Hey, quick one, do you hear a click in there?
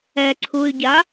yes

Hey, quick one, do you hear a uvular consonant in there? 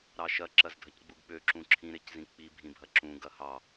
no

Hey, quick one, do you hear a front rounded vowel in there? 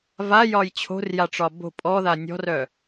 yes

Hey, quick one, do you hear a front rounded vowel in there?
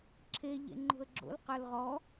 yes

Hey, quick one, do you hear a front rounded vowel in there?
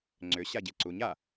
yes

